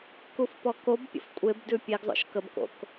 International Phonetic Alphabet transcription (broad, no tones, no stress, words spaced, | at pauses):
kufpɔkobpʲə̰f kʷʼebdʉ pʲeɡzˤo̰ʃ kəbko̰k